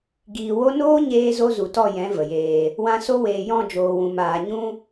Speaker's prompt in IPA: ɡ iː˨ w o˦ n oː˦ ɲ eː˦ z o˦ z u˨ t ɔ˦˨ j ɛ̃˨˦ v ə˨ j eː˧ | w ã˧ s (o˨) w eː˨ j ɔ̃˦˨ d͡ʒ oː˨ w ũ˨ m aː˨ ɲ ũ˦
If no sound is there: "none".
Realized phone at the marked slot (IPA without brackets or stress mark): o˦